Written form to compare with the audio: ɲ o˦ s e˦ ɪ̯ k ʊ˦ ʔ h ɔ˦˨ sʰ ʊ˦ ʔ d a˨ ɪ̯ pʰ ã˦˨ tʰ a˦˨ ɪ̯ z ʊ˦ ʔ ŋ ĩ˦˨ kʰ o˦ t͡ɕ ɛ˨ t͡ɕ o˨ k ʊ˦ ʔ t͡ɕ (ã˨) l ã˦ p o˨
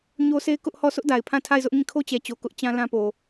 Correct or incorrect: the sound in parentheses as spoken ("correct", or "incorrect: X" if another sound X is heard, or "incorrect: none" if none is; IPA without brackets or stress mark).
incorrect: ã˦